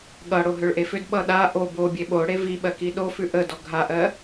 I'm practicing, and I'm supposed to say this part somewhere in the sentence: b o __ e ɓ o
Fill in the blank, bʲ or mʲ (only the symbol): bʲ